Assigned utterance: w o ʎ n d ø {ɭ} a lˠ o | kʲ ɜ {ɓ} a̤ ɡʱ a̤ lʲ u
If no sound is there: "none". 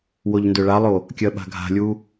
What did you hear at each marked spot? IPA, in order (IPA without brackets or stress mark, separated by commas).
ɭ, ɓ